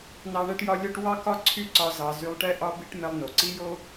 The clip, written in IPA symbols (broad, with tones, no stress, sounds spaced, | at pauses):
n ɑ˥ ɳ ɛ˥ ʈ j ɒ˥ lʲ ɒ˥ ʈ w ɑ˥ k ɒ˥ ǀʰ y˥ ǀ ɒ˧ z ɑ˧ z y˧ lˠ ʈ ɛ˥ ʔ ɒ˥ b i˥ ʈ m ɛ˧ lˠ n o˩ ǀ i˥ j o˥